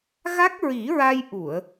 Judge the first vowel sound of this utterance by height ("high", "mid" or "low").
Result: low